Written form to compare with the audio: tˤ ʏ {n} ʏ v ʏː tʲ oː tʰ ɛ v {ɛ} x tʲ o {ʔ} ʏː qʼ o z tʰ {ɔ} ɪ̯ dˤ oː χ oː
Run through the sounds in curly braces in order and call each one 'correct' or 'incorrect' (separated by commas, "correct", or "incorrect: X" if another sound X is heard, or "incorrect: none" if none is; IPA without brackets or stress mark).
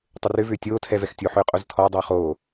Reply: incorrect: r, correct, incorrect: ħ, correct